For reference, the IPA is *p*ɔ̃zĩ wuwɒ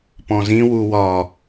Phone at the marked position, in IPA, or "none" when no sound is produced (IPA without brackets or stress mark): p